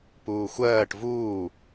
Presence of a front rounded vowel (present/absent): absent